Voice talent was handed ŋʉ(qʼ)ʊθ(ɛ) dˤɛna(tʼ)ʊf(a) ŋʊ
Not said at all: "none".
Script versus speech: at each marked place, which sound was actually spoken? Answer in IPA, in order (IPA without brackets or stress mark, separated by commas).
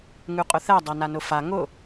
qʼ, ɛ, n, a